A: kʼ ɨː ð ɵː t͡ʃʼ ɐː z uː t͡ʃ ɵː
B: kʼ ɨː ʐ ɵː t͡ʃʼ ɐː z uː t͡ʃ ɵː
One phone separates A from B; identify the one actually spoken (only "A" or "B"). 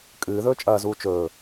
A